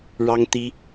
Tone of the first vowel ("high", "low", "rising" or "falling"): high